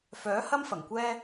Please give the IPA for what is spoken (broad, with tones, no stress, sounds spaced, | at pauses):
f œː˨˥ h ɐ˥ m f ɐ˨˩ ŋ kʷ ɛː˥